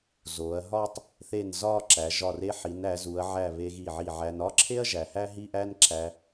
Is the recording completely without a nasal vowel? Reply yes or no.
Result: yes